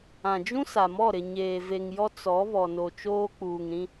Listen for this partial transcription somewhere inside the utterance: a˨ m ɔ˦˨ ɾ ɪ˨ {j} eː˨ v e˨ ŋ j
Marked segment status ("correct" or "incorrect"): incorrect